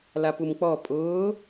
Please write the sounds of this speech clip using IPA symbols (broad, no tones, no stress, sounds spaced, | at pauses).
l a p u m k͡p ɔ pʼ ʊː